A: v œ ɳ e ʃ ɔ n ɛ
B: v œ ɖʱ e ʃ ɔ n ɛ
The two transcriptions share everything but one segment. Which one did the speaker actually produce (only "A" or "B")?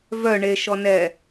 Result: A